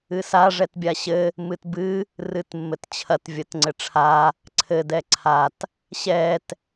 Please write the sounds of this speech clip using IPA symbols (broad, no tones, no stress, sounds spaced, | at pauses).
ɨ s a ʐ ɛ t bʲ a ɕ ɘ | m ɨ t b ɨ | r ɨ t mː ɘ t t͡ɕʰ ɐ t vʲ ɐ t ŋ͡ǀ ɘ ʈ͡ʂʰ a | ǀʰ ɘ d ɛ ǀʰ a t | ɕ ɛ t